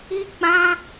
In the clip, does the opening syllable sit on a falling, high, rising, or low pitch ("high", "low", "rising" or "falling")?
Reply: high